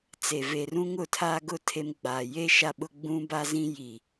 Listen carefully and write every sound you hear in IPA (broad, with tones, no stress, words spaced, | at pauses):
t͡se˨ve˨rũ˦ŋʊ˨ tʰa˦ɡʊ˦ tʰe˦m ɡ͡baː˨ je˦ ʃa˦ɓʊ˦ ɡ͡bũ˦ba˦zĩ˦ ji˨